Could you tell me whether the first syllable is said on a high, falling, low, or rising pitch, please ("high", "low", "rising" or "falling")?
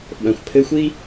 low